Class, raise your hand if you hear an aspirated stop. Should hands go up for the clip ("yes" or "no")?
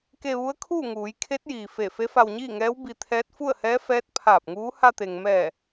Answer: yes